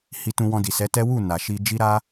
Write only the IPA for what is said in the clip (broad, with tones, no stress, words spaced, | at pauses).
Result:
hi˧tũ˧wɔ̃˧ di˨sɛ˨˦ tɛ˦ wu˦˨ na˨ ʃi˧d͡ʒi˦ ɾa˦